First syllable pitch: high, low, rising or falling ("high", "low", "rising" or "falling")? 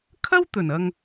high